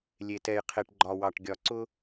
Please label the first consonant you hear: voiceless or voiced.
voiced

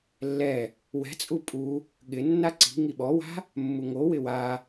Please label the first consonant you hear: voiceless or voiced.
voiced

